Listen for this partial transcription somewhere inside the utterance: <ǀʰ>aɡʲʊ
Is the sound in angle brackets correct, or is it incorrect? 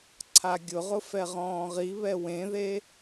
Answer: correct